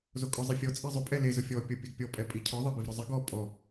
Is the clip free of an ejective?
no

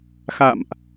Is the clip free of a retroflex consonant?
yes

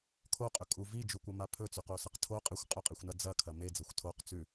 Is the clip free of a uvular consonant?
no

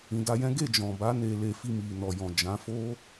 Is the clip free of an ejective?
yes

